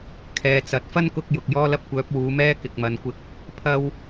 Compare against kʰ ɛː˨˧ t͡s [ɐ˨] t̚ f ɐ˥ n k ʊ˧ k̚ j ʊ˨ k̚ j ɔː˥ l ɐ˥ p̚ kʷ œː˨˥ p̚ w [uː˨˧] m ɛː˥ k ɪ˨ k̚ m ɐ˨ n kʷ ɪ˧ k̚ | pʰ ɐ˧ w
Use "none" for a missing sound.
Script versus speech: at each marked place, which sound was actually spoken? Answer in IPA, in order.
ɐ˨˥, uː˨˧

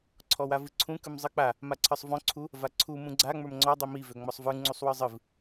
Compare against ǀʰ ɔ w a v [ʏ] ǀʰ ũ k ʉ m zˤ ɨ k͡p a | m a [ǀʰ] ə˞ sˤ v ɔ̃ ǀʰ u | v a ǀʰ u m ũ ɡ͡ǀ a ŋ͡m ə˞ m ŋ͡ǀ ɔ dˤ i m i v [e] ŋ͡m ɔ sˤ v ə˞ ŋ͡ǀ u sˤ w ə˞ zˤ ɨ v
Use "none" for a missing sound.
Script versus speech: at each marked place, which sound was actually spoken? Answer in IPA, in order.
ɨ, ǀʰ, ø

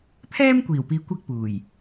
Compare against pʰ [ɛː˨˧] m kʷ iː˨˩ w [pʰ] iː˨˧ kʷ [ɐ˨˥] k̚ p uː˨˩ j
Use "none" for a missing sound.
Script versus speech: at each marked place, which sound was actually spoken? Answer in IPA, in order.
ɛː˥, p, ɐ˧

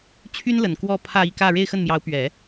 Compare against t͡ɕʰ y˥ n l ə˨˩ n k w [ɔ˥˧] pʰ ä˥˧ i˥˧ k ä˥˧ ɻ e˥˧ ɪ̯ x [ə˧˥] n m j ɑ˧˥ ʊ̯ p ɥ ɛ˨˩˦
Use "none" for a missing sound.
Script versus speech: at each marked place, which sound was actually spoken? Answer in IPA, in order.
ɔ˥˧, ə˥˩

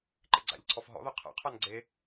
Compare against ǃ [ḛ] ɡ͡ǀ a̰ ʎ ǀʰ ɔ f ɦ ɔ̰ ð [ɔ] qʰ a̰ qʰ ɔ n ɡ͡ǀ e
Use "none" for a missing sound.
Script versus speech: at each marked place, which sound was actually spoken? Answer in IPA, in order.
ḛ, ɔ

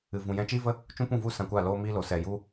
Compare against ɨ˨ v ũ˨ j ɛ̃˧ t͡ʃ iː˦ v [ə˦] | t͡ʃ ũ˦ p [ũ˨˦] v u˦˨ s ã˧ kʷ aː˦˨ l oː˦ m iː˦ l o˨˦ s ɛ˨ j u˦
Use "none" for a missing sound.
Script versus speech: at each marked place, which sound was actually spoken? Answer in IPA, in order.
ə˦, ũ˦˨

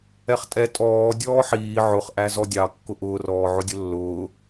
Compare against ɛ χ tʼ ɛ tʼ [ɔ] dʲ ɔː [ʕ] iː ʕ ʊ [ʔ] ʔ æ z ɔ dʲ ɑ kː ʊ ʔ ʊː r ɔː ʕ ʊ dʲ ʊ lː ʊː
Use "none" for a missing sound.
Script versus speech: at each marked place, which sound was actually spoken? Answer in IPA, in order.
ɔː, ħ, χ

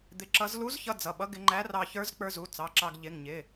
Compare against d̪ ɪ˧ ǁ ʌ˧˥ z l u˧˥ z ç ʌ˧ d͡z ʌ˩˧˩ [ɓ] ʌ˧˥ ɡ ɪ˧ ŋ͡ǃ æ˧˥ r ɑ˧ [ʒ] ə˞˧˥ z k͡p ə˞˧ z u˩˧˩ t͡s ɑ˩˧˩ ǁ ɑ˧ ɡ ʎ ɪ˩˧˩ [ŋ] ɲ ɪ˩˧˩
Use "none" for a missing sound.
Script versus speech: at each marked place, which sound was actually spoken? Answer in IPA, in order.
ɓ, ç, ŋ

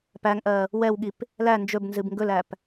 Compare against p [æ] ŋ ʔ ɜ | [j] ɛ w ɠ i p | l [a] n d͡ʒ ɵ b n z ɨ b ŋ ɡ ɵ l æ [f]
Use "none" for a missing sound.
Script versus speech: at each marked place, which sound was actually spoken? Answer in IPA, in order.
æ, w, æ, p

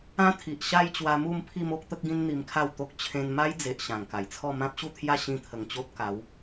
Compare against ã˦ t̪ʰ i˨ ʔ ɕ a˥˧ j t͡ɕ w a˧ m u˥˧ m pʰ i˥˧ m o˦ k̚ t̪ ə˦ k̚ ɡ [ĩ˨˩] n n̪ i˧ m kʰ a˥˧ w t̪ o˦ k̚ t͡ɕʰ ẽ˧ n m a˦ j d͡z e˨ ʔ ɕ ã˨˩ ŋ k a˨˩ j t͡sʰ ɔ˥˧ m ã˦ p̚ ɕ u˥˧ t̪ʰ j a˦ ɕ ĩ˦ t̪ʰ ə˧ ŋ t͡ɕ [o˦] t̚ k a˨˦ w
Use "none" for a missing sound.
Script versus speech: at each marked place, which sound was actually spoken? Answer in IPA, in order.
ĩ˦, o˦

